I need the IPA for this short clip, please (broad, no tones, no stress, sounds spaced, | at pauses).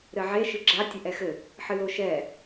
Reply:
ɾ ɘ ʕ e ʃ ɨ ɡ͡ǁ a tʲ ɘ ʔ ɛ x ɘ | ħ ɨ l o ʃ ɛ